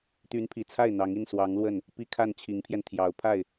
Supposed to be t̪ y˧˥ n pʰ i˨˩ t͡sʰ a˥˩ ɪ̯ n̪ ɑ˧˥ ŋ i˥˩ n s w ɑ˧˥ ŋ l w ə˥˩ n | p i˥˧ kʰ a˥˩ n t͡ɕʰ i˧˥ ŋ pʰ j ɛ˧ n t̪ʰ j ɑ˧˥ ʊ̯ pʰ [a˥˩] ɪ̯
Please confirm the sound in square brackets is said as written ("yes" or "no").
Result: yes